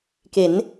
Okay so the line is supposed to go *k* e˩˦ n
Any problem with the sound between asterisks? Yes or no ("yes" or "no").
no